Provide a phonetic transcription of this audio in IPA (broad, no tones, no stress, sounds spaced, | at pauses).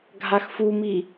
ɡʱ a x f u m i